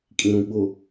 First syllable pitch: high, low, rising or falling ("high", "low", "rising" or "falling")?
low